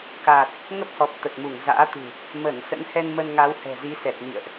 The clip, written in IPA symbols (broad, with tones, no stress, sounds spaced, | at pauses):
k aː˨˩ t̚ | ŋ ə˦˥ p̚ h ɔ˨˩ p̚ t̪ ə˨˩ t̚ m u˧˩ ŋ z a̰ː˧˥ t̪ ṳ˨˩ | m ə˧˩ n s ə̰˧˥ n h ɛ˧ n m ə˧ n ŋ a˨˦ w h ɛ̤˨˩ z i˨˦ s ɛ˨˩ t̚ n ḭ˧˨ ə̯ ʔ